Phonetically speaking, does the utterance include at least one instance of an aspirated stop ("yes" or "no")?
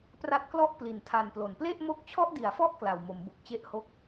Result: yes